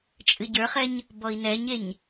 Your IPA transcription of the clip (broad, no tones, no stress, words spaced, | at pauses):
t͡ʃʼɨɟə˞χɛɲ | bɔi̯nɛɲeɲ